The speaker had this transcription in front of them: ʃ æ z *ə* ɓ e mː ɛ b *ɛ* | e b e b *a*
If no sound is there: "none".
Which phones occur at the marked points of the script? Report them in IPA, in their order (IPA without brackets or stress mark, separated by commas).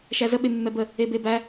ə, ə, æ